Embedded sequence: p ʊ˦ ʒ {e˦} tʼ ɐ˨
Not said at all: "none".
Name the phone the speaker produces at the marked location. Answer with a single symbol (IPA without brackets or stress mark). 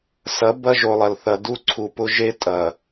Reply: e˦